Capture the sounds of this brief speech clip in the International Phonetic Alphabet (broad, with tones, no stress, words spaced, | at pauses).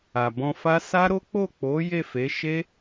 a˨bɔ̃˧fa˦ sa˦ɾo˦ k͡po˦˨k͡po˨˦ je˦˨fe˨˦ ʃe˦